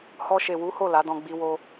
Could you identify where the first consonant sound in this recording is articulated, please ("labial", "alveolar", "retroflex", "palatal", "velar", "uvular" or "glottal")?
glottal